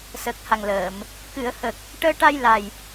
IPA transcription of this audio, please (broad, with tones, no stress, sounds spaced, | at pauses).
s ə˨˩ k̚ h a˨˩ ŋ l əː˨˩˨ m | k ɨ˨˩˨ ə̯ h ə˨˩ k̚ | ʈ əː˧ ʈ a˧ j l a˨˩ j